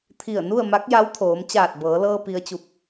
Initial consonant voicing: voiceless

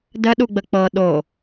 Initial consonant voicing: voiced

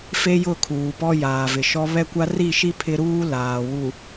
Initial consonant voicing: voiceless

